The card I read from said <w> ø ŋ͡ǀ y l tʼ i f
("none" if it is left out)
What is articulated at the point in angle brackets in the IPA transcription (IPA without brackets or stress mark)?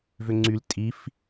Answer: v